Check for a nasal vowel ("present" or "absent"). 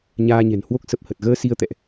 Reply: absent